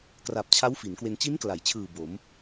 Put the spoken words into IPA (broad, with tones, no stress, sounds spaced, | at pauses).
k r a˨˩ p̚ t͡ɕʰ a˦˥ w f i˩˦ n k w e˧ n t͡ɕ i˦˥ n k l a˩˦ j t͡ɕʰ ɯː˨˩ b o˩˦ m